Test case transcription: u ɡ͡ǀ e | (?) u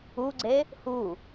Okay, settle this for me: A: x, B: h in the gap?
B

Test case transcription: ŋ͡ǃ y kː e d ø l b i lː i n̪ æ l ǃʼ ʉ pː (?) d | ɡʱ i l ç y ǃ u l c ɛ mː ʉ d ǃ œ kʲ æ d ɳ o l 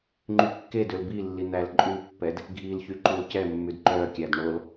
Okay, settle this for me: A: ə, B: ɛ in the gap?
B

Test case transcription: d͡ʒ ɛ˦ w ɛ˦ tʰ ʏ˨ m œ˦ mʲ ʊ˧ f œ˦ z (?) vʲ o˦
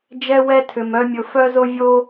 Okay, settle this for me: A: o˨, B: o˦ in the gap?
B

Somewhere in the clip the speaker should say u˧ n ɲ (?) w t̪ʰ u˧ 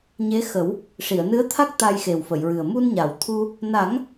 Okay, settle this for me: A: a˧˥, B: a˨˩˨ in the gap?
B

